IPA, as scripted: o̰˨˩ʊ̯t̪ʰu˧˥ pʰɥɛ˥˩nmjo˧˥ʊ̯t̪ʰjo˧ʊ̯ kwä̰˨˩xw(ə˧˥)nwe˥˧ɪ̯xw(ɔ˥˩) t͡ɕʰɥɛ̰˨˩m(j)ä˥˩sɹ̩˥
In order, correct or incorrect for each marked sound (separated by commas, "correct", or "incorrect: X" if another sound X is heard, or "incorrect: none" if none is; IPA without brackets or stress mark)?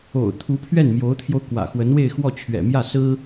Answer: correct, correct, correct